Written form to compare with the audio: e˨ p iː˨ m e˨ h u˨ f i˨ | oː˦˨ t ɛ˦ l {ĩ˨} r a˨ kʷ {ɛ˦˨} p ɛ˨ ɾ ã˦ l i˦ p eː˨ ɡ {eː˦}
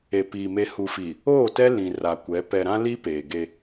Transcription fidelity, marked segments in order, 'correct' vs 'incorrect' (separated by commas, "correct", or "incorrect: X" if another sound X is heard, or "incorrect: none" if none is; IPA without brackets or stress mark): correct, incorrect: ɛ˨˦, incorrect: e˦